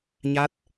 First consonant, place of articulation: palatal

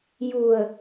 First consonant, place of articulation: palatal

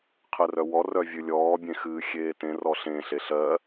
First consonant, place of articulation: uvular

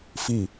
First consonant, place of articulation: labial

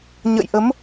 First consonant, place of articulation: palatal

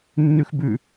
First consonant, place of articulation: alveolar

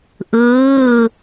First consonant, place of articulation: glottal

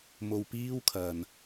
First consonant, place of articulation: labial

